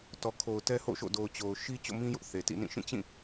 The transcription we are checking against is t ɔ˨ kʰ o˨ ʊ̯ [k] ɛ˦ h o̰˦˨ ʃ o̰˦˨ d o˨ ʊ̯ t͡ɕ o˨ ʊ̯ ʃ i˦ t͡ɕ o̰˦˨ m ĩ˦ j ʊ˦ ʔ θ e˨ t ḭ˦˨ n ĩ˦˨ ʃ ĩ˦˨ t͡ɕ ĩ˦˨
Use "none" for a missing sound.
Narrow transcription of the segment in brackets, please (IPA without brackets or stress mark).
t